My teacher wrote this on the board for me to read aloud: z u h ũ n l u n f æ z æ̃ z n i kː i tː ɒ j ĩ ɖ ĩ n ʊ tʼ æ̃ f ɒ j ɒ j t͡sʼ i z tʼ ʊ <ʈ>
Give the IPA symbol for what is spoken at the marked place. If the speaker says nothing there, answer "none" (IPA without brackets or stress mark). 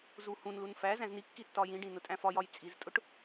ʈ